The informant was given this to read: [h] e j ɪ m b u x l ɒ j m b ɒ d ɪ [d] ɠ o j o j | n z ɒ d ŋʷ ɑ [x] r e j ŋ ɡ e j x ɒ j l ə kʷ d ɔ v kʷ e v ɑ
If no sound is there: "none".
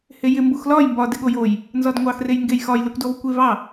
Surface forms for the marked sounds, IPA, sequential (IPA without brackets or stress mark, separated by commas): h, none, x